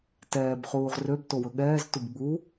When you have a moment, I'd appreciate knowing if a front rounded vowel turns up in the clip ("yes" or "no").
yes